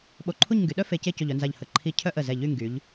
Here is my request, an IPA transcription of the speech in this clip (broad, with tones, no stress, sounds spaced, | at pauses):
ɓ o˧˩ ǃʰ u˥˧ ɲ ŋ ɡ y˩˧ ɗ œ˥ f e˧ c e˥˧ c o˧˩ ʎ œ˥˧ n z a˧˩ ʎ h ə˧˩ ǃʰ i˧˩ cʰ œ˥ ʔ ə˧˩ z ɛ˧˩ ʎ y˥˧ ŋ ɡ y˩˧ ʎ